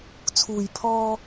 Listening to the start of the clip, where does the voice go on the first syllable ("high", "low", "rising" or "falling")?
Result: low